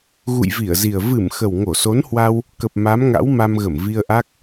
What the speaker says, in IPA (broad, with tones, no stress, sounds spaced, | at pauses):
ɣ ṵ˧˨ j v i˧˩ ə̯ z i˨˩ ə̯ v ɨ˧˩ m x ə˨˩ w ŋ o˧˩ s o˨˦ n h w a˧ w | k ə˨˩ p̚ m a˨˦ m ŋ a̰˧˥ w m a˧ m ɣ ə˧˩ m v i˧ ə̯ ʔ a˦˥ k̚